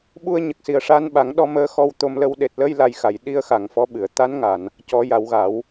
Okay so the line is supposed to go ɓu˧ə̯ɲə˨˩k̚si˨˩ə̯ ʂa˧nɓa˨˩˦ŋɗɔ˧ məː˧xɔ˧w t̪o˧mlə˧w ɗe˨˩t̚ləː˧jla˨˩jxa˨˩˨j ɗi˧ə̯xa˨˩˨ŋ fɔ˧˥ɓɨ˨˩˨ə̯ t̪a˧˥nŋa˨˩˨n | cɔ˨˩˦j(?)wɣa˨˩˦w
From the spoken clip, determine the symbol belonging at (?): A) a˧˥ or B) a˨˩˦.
B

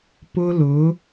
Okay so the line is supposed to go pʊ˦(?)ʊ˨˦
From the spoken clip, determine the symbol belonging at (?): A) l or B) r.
A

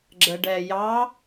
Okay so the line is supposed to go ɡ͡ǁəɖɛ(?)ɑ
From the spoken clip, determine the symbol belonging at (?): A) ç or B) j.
B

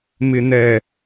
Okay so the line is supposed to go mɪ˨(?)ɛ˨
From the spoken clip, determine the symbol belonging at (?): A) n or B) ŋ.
A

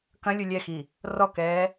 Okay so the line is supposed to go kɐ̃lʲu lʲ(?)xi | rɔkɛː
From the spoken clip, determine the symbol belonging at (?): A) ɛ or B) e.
A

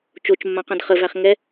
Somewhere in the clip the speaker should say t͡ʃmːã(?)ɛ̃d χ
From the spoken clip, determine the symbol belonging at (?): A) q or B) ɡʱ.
A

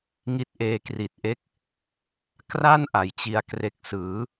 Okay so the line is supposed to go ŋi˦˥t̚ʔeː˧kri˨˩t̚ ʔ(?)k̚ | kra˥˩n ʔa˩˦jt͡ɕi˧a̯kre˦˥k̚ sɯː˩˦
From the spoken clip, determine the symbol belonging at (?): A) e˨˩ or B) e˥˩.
B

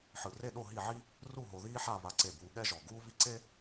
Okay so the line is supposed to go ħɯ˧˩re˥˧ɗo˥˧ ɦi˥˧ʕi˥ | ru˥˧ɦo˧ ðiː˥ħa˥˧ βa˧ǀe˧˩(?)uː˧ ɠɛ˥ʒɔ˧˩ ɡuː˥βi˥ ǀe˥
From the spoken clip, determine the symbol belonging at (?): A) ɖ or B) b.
B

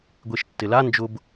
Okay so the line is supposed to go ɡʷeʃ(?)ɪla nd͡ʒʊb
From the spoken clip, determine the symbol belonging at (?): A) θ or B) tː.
B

